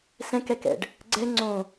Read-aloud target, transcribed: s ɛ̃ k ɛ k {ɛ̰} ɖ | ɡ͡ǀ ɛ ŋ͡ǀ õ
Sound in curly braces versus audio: correct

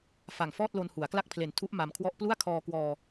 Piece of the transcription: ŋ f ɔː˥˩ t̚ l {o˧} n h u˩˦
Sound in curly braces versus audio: correct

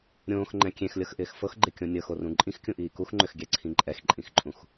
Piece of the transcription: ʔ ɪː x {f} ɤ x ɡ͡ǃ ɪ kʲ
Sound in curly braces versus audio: correct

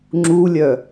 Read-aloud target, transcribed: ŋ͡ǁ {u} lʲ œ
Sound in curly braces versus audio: correct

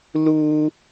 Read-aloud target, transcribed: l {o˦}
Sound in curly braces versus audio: incorrect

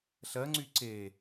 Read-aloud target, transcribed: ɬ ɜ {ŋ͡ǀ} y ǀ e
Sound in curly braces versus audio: correct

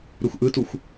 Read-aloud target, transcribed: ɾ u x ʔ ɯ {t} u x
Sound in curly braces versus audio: correct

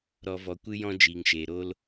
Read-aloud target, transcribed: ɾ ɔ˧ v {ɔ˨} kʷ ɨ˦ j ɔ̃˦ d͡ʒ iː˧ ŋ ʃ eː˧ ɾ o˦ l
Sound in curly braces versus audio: incorrect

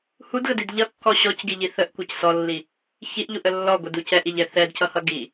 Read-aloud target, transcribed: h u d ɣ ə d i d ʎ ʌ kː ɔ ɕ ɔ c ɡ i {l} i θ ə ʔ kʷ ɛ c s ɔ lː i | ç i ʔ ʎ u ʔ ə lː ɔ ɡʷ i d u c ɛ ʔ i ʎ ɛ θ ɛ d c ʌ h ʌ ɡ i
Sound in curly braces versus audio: incorrect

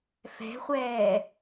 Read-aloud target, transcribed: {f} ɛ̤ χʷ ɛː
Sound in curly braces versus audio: correct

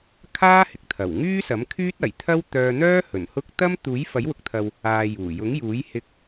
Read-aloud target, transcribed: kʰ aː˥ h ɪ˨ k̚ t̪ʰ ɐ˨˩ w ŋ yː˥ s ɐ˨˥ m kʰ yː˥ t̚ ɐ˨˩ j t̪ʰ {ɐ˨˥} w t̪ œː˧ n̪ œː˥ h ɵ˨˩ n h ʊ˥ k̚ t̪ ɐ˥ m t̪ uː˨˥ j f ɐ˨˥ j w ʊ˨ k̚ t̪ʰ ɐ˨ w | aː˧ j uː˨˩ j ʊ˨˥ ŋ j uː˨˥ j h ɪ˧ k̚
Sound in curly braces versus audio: incorrect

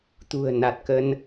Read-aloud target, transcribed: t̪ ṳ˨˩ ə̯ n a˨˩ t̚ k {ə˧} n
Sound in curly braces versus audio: correct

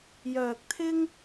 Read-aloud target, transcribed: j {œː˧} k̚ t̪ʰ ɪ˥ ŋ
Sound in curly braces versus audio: correct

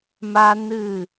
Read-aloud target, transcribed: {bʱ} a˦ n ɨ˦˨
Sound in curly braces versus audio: incorrect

